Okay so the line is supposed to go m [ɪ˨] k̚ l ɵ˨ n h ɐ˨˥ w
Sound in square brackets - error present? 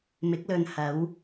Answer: yes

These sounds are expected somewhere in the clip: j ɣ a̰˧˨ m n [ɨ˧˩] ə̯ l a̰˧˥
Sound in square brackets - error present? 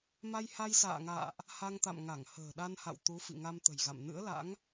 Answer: yes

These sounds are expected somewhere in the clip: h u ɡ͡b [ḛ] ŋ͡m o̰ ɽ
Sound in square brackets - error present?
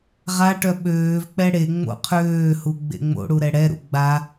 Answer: no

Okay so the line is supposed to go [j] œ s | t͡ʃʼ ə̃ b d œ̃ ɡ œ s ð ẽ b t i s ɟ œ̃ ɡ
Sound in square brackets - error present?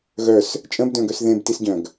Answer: yes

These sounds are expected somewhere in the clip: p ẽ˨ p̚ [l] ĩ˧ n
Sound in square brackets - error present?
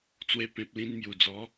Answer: no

